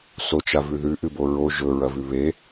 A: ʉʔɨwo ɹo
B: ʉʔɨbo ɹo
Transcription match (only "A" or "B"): B